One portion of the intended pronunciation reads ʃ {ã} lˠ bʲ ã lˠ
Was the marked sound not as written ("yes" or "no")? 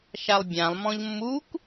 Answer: yes